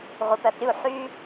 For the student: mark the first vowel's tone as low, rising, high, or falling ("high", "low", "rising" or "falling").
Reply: low